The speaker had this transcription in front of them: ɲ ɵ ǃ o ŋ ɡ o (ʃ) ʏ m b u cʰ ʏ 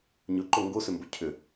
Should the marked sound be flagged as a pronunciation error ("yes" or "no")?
yes